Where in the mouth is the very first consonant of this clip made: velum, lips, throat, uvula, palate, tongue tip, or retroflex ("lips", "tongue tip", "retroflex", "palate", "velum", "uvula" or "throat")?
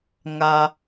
velum